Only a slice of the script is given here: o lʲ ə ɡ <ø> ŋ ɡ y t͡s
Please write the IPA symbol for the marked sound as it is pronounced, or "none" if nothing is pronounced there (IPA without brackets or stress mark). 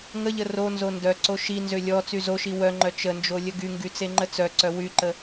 y